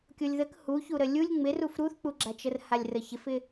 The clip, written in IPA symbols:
kʲolʲðək huçu ɾəlʲulʲ ŋ͡mɪruf ɾuθk͡puɡ͡ǁat͡ʃər halʲrəçɪfɪ

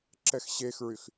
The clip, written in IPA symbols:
ǁɛxɕexɹyx

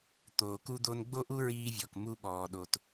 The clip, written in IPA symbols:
t̪oː˨ku˧d̪o˧n ɡ͡bo˦ʔu˦ɹiː˧vʲɔ˨k mu˧ɓɔː˨ ɗo˨t

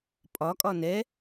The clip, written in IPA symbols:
pʼɒkʼɒ nɛ

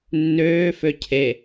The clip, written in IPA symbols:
nːøːfø cʰe

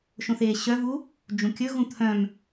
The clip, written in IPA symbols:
ʃõθeːɕœvu | d͡ʒũkʲɵɣũ t̪ʰœ̃m

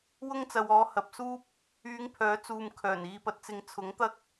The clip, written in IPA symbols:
wʊ˥ŋt͡sɐ˨wɔː˨˧ hɐ˨p̚suː˥p̚ | yː˨˧ŋpʰœː˨˥t͡suː˨m kʰœː˨˩niː˧pɐ˧t̚t͡sɪ˧ŋ t͡sʰʊ˨˥ŋt̪ɐ˥k̚

